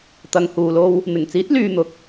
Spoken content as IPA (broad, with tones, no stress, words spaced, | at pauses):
t̪ɐ˨ŋhuː˨lo˧w | n̪ɪ˨˩ŋt͡siː˨˥t̚ lyː˧n̪ʊ˨k̚